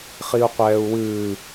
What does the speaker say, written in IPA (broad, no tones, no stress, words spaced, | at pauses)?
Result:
χiu̯qʷɛːu̯wɨː